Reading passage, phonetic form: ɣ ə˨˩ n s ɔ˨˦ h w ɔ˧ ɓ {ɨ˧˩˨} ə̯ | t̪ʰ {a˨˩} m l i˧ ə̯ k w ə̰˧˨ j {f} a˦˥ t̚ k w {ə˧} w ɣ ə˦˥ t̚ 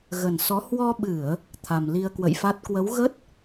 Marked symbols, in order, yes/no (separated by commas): yes, yes, yes, no